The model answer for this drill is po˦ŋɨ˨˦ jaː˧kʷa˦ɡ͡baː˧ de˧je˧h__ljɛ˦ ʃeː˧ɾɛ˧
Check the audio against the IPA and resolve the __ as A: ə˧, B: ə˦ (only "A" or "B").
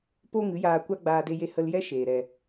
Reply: A